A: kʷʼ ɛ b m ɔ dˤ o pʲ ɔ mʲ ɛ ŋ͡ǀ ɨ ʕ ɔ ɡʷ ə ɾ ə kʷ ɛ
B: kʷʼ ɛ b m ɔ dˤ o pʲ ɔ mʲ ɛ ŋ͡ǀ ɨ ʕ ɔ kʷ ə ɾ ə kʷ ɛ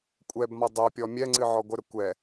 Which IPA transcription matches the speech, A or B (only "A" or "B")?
A